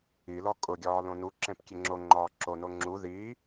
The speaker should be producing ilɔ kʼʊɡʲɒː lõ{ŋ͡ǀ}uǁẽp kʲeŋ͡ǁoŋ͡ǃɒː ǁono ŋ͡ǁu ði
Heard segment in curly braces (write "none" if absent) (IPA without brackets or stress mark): n